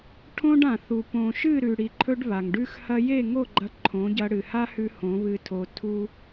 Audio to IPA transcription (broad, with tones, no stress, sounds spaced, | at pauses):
ʈʰ õ˦ ɖ ã˨ θ u˨ p õ˨ ʃ ɨ˦˨ ɾ ʉ˨ ɽ i˨ ǃʰ ɵ˧ ɖ β a˨ ŋ ɖ ʉ˦ x h ɐ˦ j e˦˨ ŋ o˦˨ ɡ͡ǃ ɐ˧ ǃʰ õ˨˦ ɟ ɐ˧ ɽ ɨ˨ h a˦ h ʉ˧ h õ˨˦ β ɨ˧ tʰ o˧ tʰ u˦